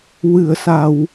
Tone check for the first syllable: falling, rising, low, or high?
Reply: low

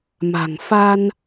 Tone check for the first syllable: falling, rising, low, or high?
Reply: low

